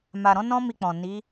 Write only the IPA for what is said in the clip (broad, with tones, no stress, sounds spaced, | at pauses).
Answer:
m a˨ ɾ ɔ̃˧ n ɔ̃˦ m i˧ k͡p ɔ̃˨ n i˨˦